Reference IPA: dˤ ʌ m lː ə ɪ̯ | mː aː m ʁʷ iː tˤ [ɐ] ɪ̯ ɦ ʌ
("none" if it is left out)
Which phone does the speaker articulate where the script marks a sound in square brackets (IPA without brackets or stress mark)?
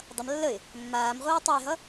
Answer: ɐ